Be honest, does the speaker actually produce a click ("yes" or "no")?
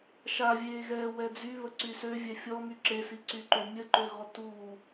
yes